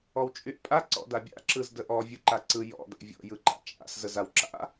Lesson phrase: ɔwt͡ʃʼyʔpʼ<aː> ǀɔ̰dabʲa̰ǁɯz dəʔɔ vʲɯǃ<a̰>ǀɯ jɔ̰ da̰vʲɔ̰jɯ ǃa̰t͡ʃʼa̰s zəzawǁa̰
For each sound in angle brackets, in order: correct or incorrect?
incorrect, incorrect

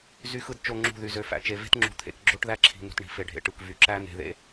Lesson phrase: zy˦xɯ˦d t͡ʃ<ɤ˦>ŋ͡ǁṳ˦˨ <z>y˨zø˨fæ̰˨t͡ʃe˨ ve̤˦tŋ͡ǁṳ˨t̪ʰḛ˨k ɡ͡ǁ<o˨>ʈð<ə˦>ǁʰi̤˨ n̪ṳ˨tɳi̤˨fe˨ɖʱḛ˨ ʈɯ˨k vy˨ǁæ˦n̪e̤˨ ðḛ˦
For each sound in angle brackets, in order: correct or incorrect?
incorrect, incorrect, incorrect, incorrect

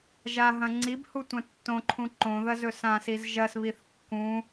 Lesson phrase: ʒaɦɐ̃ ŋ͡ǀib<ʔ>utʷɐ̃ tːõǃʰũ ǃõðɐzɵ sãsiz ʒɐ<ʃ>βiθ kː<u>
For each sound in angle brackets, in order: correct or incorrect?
incorrect, incorrect, incorrect

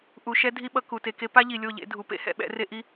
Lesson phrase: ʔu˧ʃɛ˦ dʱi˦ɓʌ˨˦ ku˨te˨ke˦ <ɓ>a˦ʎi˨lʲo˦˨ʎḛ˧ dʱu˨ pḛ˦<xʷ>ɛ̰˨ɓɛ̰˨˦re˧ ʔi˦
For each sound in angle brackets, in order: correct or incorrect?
incorrect, incorrect

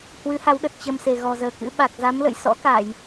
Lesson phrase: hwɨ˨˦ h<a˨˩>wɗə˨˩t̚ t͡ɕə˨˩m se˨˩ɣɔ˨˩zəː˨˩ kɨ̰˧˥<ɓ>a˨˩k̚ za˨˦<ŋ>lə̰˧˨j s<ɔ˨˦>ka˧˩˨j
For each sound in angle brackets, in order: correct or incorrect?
incorrect, correct, incorrect, incorrect

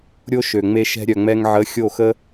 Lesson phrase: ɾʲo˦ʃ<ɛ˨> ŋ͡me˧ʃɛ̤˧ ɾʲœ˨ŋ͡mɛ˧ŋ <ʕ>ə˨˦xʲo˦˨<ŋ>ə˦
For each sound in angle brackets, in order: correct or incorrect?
incorrect, correct, incorrect

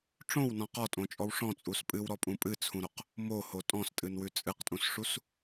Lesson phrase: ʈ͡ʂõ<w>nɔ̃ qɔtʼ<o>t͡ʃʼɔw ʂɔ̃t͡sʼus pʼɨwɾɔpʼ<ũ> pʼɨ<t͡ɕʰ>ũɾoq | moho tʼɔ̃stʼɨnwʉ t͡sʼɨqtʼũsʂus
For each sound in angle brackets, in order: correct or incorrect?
correct, incorrect, correct, incorrect

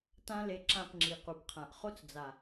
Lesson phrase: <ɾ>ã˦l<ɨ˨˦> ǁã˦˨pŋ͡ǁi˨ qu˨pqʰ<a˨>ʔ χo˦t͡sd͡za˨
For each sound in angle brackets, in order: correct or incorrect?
incorrect, incorrect, incorrect

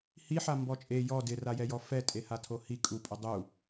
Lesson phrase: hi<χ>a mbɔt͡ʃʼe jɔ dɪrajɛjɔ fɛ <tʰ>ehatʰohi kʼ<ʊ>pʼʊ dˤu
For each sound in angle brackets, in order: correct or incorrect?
incorrect, incorrect, incorrect

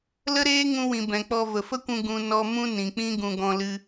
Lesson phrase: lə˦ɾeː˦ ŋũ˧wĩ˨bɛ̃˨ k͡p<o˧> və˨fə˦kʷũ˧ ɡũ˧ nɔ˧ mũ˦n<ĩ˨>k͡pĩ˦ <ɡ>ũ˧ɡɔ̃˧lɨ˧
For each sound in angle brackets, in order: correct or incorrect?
incorrect, correct, correct

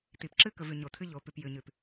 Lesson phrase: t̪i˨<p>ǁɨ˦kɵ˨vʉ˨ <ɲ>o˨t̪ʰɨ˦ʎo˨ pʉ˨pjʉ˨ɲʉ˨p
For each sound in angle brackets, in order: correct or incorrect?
correct, correct

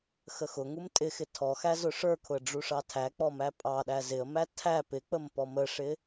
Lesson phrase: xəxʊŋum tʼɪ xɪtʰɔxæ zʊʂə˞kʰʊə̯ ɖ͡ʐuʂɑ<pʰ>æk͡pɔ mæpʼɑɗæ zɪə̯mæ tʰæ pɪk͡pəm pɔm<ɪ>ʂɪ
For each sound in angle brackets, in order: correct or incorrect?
incorrect, incorrect

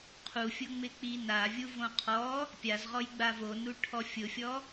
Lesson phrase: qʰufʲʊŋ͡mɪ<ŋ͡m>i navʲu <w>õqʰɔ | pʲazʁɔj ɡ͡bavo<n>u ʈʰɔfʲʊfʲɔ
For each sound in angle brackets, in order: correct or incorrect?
incorrect, incorrect, correct

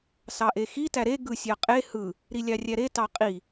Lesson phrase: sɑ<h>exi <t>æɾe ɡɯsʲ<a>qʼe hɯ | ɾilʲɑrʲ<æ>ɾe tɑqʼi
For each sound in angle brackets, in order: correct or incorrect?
incorrect, correct, incorrect, correct

